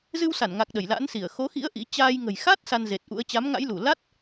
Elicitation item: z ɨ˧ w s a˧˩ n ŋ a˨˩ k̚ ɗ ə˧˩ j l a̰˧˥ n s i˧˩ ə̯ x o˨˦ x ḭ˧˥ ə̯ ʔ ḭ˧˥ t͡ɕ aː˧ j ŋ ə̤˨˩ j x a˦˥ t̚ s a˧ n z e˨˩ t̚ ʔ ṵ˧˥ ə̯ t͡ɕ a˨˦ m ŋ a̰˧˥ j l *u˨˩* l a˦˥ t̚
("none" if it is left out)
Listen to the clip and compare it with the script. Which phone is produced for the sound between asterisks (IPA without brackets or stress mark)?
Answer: u˧˩